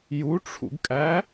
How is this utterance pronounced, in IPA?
j u ʈ͡ʂʰ ṵ ɡ kʼ æ

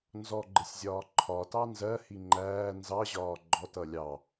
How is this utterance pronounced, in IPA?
n z ɔ ɡ͡ǃ ɪ sʲ zʲ ɒː ǃʰ ɒ t ɑ n z ɜ h i ŋ͡ǃ æː n z ɑ ʑ ɒː ɡ͡ǃ ɔ t ʌ lʲ ɑ

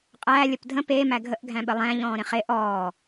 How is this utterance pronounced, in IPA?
qʼ æ lʲ ə p dʱ ə̃ p e m æ ɡʱ ə ʔ ɡʱ æ̃ ɓ ə lˠ æ̃ ʎ ɔ̃ː ɾ ẽ χ e ʔ ɔː

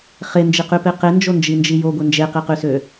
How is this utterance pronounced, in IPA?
χ e n d͡ʒ i q y p e q e n d͡ʒ o n d͡ʒ i n d͡ʒ i j o ɡʷ e n d͡ʒ e q i q y s ø

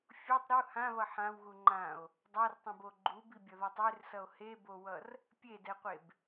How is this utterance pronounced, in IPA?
fʲ o tˤ ɾ u h ã β ʌ ħ ã w ɣ u ŋ͡ǃ ã o̯ | dˤ a r tˤ õ b o ɡ͡ǃ u b i bʲ ʌ ð a tˤ e r s ʌ o̯ h e b o w ʌ r | pʲ e d ɛ qʷ e b

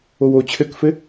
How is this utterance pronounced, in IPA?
o w oː t͡ɕʰ ɘ k f ɘ

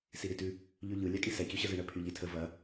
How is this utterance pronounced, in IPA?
s i ɾ i t ʉ | ʎ ʉ ʎ ɯ lʲ a kʼ i s ɛ c y ɕ ə z ɯ ɳ ə pʰ y ʎ i tʰ ə v ɐ

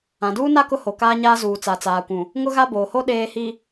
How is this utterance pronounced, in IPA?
ã˨ d uː˦ n a˦ k ʊ˦ h o˨ k aː˦ ɲ aː˦ z uː˨ t͡s a˨ t͡s aː˨ kʷ ũ˨ | ŋ ʊ˦ ɣ a˦ b oː˨ h o˦ ɗ eː˨ h i˨

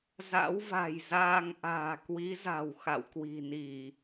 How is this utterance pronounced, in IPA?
z a̰˧˥ w v a̤˨˩ j z aː˧ ŋ ʔ a̤ː˨˩ k w i˨˦ z a̤˨˩ w x a̰˧˨ w k w i̤˨˩ n i˧˩˨

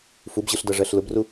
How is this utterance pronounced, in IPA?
f u b ʑ ɯ ɬ d ʌ ʐ ɜ ɬ l ʊ b r u

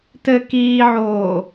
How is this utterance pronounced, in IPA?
t ɘ k iː ʕ oː

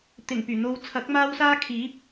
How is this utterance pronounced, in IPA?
t̪ ɪ˨˩ ŋ p yː˨˩ n̪ o˨˧ w t͡sʰ ɐ˨˥ k̚ m aː˧ w s aː˧ kʰ iː˨˥ p̚

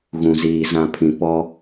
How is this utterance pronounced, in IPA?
ɣ ũ˨ z iː˨ z ã˦˨ pʰ ĩ˨ p ɔ˦

